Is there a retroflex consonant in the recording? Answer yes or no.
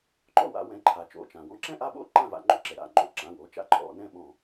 no